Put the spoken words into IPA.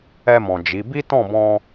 ɛ˧ m ɔ̃˨ d͡ʒ i˨˦ b i˦ t ɔ̃˦˨ b ɔ̃˧

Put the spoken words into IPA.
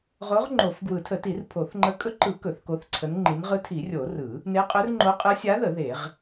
ʁ o˧˥ ʁ ŋ͡ǃ o˨˩˦ f ɡ w ɯ˨˩˦ tʰ ə˨˩˦ t i˨˩˦ r pʰ o˨˩˦ θ ŋ͡ǃ ə˧˥ kʼ ɵ˧˥ ǃ ɯ˨˩˦ k ɵ˨˩˦ θ k o˧˥ θ ǀʰ ə˧˥ n ŋ͡ǃ i˧˥ n ʁ ɯ˧˥ tʰ i˨˩˦ rʲ o˨˩˦ r ɯ˨˩˦ | n e˧˥ qʼ ɵ˧˥ r ŋ͡ǃ o˧˥ qʼ ɯ˧˥ sʲ a˧˥ ð ə˨˩˦ ð e˨˩˦ ʁ

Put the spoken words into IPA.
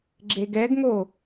ɡ͡ǁ e ɡ ɛ ɡ ŋ o

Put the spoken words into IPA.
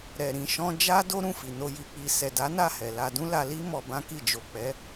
ɾ ɛ˨ ɾ ĩ˧ ʃ ɔ̃˦ d͡ʒ a˦ d o˦ ɾ ũ˦˨ f i˨ n o˧ j i˨ k͡p i˧ s ɛ˨ d a˨˦ n a˦˨ h ɛ˨ l a˧ d ũ˦ l a˧ l i˦ m ɔ˧ b ã˦ k i˦˨ d͡ʒ o˨ k͡p ɛ˨˦

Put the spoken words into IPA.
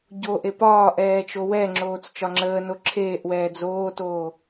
ɟ o ʔ e p ɒː ʔ ɛː t͡ʃ o w ɛ ŋ͡ǁ oː t͡s t͡ʃ ɒ ŋ͡ǁ əː n o ǁʰ eː ʔ w ɛː d͡z oː t oː

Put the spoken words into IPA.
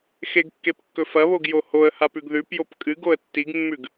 x e ɡ kː e p kː ɵ f ɐ β o ɡ j o h o ə̯ h a p ʉ ɡ ð ʉ p j o p kʼ ɨ ɡ o ə̯ tː i ɡ mː ʉ ɡ

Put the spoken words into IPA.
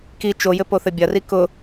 k i t͡ʃ o j ɘ p o θ ɘ bʲ ɐ r i k ʊ

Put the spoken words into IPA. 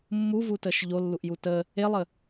mː u v u t ə ʃ ʎ o lː u ʔ j u t ə | e lˠ ə

